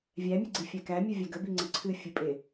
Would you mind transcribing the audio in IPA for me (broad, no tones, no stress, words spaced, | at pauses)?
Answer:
vʲæmʲɨɡ͡ǀi fʲækæ mʲɨvʲæɡə biŋ͡ǀəǀʰɨ fʲɨpʼe